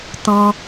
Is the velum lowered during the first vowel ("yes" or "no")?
yes